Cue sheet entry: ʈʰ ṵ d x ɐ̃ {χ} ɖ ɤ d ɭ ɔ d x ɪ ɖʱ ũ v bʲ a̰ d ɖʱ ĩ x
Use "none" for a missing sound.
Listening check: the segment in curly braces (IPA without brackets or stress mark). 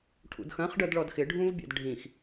χ